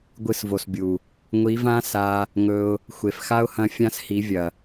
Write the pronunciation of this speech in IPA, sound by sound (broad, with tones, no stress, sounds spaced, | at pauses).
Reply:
ɡʷ ɨ˧ s v o˨ s bʲ u˨ | ŋʷ i˨˦ v ã˦ s a˧ | ŋ ɵ˧ ʊ̯ | xʷ e˨ f x a˦ ʊ̯ h ɐ̃˧ fʲ ã˦ s h i˨˦ vʲ ɐ˨